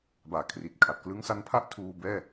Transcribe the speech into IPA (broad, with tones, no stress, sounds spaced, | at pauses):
b aː˨˩ kʰ r i˨˩ t̚ kʰ a˨˩ t̚ k l ɯ˧ ŋ s a˧ n pʰ a˥˩ ʔ tʰ uː˧ b ɛː˥˩